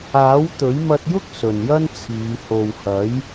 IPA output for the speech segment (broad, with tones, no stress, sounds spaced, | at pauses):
aː˨˥ w t̪ ɵ˨˥ ɥ m ɐ˧ t̚ j ʊ˥ k̚ s ɵ˨ n j ɐ˥ n t͡sʰ iː˨˧ h o˨ w h ɐ˨˥ j